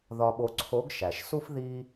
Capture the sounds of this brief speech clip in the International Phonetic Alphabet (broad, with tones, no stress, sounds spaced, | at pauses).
ð ɒ˧ ɓ o˧ ǀʰ o˧˥ ɡ ʃ æ˩ ʃ s u˥ f ð i˥